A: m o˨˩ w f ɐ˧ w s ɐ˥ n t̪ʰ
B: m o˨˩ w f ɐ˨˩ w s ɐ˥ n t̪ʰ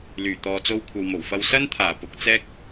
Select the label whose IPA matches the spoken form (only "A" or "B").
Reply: A